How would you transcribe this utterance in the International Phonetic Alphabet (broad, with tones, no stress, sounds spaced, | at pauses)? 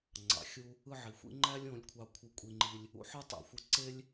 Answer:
ŋ͡ǀ ɑ̰˩ xʲ u˧ | ɯ˥˩ ʕ i˩ xʷ ḭ˥ ŋ͡ǃ æ˥ lʲ õ˩˥ lʲ kʷʰ ɑ˧ kʷʰ ɯ˧ kʷʼ i˧ ŋ͡ǃ i˧ lʲ | ṵ˩˥ ħ ɯ˥˩ tˤ æ̰˩ xʷ ɯ˧ ǀ e˥ lʲ